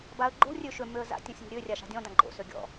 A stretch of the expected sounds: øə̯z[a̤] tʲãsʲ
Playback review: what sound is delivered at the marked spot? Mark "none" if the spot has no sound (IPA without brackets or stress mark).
a̰